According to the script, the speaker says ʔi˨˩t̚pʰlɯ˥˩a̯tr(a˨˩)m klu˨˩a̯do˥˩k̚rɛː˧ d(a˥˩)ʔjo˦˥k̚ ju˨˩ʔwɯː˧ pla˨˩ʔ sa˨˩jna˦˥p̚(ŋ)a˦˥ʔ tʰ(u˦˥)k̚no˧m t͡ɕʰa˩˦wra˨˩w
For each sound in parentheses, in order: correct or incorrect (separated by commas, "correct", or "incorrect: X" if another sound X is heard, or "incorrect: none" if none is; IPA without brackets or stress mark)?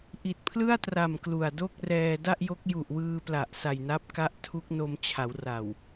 correct, correct, incorrect: k, correct